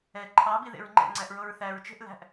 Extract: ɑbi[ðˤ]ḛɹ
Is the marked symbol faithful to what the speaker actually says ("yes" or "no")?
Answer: no